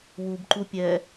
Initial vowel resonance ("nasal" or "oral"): oral